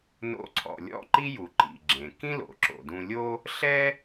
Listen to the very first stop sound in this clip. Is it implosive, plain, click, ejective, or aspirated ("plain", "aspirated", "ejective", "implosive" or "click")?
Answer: click